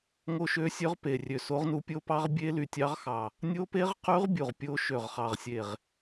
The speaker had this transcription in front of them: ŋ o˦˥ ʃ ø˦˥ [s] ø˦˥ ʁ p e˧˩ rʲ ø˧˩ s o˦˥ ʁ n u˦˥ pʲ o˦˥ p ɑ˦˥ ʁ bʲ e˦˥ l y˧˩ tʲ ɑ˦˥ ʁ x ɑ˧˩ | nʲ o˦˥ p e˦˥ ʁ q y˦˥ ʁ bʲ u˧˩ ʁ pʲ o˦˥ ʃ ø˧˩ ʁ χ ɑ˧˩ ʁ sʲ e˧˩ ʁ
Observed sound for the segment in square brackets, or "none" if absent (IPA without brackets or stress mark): sʲ